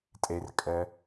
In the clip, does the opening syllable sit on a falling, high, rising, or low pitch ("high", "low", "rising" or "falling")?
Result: low